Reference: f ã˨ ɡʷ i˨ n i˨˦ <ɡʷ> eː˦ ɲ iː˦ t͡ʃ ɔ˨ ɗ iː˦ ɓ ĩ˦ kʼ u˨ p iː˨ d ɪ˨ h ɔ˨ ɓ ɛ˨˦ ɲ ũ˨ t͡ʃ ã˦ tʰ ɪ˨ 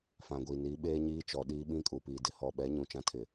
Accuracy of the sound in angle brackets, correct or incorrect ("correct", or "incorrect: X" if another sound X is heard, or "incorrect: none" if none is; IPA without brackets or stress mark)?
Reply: incorrect: ɓ